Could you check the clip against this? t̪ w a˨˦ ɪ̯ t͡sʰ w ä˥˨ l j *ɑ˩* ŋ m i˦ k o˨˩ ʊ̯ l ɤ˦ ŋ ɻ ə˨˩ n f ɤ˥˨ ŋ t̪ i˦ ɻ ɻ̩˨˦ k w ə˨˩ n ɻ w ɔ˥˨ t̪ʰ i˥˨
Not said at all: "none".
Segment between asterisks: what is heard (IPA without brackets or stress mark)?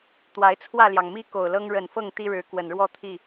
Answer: ɑ˩